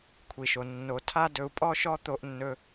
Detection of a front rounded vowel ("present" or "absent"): absent